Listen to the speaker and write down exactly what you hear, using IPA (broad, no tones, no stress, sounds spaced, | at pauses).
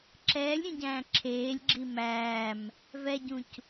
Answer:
ǁ ɛː lʲ ɾʲ ũ ɟ æ̃ː ǁʰ eː lʲ ɡ͡ǁ i m æː m | v ɛ ɟ ũ c